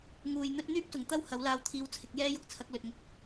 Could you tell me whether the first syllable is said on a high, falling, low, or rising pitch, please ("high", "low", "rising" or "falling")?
low